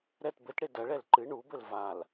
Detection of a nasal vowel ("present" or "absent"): absent